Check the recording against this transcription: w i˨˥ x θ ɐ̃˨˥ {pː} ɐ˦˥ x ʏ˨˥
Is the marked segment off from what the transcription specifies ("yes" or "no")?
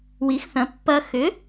no